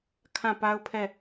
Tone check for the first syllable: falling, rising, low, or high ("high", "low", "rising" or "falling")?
falling